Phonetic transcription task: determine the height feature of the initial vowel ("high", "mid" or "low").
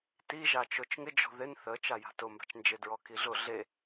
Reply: high